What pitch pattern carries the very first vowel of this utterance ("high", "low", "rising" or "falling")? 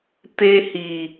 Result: high